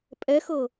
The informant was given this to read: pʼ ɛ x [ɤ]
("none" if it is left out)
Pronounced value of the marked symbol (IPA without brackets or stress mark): ɤ